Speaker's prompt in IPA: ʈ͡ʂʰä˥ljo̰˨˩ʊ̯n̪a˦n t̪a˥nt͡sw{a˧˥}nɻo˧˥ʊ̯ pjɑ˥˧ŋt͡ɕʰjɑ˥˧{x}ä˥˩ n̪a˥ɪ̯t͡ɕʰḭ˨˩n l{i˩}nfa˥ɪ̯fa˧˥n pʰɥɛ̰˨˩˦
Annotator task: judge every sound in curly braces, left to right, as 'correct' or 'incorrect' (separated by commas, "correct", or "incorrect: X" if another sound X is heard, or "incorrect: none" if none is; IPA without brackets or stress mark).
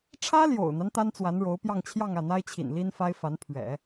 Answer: correct, incorrect: ŋ, incorrect: i˥